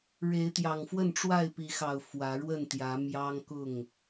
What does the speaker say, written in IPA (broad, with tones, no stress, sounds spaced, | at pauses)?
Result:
ɻ e˨˦ ɪ̯ t̪ j ɑ˨˩ ŋ f w ə˥˨ n ʈ͡ʂ w a˥˨ ɪ̯ p i˨˦ x ɑ˨˩ ʊ̯ f w ä˨˦ ɻ w ə˥˨ n t̪ j ä˨˦ m j ɑ˦ ŋ k ʊ˥˨ ŋ